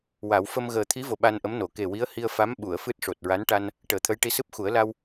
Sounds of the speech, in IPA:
wa˨˩˦w fə˧m ɣəː˨˩t̪ʰi˧˥vo˨˩ ɓa˧nʔə˧˥mno˨˩˦ ke˨˩wi˧˥ə̯hi˧ə̯fa˧˥m ɓu˨˩˨ə̯fɨ˦˥t̚ ʂo˨˩t̚ɹa˧˥nʈa˧n | ʈəː˨˩˦t̪ʰə˧˥jʈi˧˥ sɨ˦˥p̚xu˨˩˦ə̯la˧w

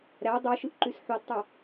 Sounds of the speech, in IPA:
ɾæ dˤøʃɯʔǃys ħodtˤæ

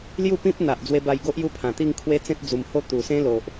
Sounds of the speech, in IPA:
lju˥˧pĩ˦p̚n̪a˨ʔ d͡zwe˧ba˧jɡo˦ʔ ju˦pʰã˨˩t̪i˥˧ŋ kʰwe˦t͡sẽ˦t̚d͡zu˨˩mho˥˧ t̪u˨˩sẽ˦lo˨ʔ

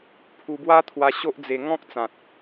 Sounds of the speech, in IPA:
pʰu˧bwa˦t̪ʰwa˧ ɕo˦ʔd͡ze˧ ŋɔ̃˦k̚t͡sã˨t̚

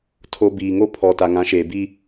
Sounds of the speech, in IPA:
tʰo˨ biː˨ŋo˦ pʰɔ˨ ta˨ŋã˨˦ʃeː˨bi˦

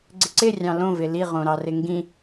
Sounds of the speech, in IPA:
ɡ͡ǀɪǀɪ rʲɑ̃lõvɪ liʁõɾɑrɪ ŋɡĩ

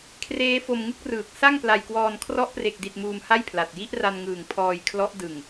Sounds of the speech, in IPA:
kʰreː˦˥fo˧mŋɯ˥˩k̚rɯː˨˩k̚ sa˥˩ŋpla˧jkwɔː˧n kʰrɔ˦˥ʔpre˨˩k̚di˨˩t̚ muː˧mha˥˩jpʰla˨˩t̚ ji˦˥ʔra˧nŋɯː˨˩ŋ pʰɔː˧jkʰlɔ˦˥ʔ dɯ˨˩ŋ

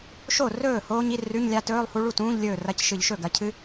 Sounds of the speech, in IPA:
ʃo˥˩rɵː˥˩ hoː˦˥ɲi˧˥˧rʉ˧˥˧ɲlʲa˦˥ tɵː˧˥˧lˠhu˦˥ɭu˥˩tũː˧˥˧ʎ lʲɵː˥˩rɐ˧˥˧cʃɨ˧˩˧ʎʃɵ˥˩ ɡɐ˩˧cʰɨ˦˥

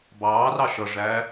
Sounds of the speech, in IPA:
bɑːrɑ ʃʌʐæː

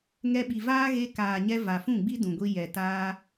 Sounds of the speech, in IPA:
ŋɛ˧ɓi˨vaː˦ ɣe˧kaː˨ɲɛ˧ va˨fũ˦˨ɡ͡bi˦ dũ˨ɡʷi˧ jɛ˨taː˦

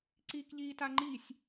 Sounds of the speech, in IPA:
ǀiːkʎiːtaŋ͡ǃisʲ

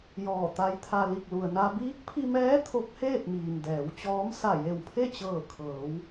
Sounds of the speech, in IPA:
jɔː˧˩t̪a˧˥jt̪ʰa˧ li˧˩k̚lu˩ə̯na˧ biː˧˥k̚pʰi˧mɛː˧˥ t̪ʰo˧˥k̚heː˥˨t̚miː˩m dɛː˩˧wt͡ɕɔː˧˥m sa˧˩je˧˩wpʰe˥˨ t͡ɕɤː˧˩ kʰɤː˩˧w

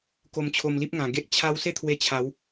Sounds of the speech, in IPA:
ko˧mt͡ɕʰo˧mli˦p̚ ŋã˨˩ɡe˦ʔ t͡ɕʰa˦w se˥˧t̪ʰwe˧ t͡ɕʰa˨˦w

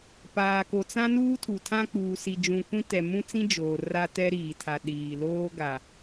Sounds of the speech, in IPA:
paː˨ko˨t͡sã˦ nuː˦tʰu˨tʰã˦ k͡puː˨ si˨d͡ʒũ˨ kʷĩ˦tɛ˨ mũ˦t͡sĩ˦ d͡ʒoː˨ ra˦tɛ˦ɾiː˨tʰa˨ ɗiː˨loː˦ ɡa˨

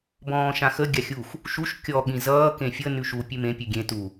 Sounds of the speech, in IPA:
bɔ̃ːʃãxə ɡʲaxʲux | ʃuʃ kʲɔ ɠĩzʌː kẽfʲə nʉʃu pʲʉmẽ pʲʉɡʲẽ tu

